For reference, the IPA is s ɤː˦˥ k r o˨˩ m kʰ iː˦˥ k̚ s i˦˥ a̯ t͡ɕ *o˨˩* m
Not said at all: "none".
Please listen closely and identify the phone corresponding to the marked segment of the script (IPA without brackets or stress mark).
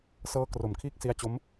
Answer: o˦˥